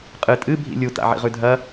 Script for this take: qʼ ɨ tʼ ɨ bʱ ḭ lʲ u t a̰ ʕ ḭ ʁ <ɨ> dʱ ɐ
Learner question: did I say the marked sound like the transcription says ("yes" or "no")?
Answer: no